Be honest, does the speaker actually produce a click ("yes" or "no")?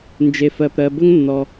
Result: no